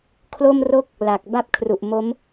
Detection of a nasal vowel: absent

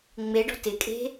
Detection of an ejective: present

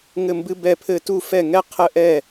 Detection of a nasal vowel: absent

